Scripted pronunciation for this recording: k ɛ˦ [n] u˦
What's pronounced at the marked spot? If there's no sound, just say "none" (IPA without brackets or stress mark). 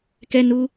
n